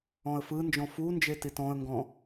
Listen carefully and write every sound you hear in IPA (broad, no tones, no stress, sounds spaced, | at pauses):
ɔ̃ ə̯ f ɯ n d͡ʒ ɔ̃ f u n d͡ʒ e t i t ɔ̃ ə̯ ŋ ɡ ɔ̃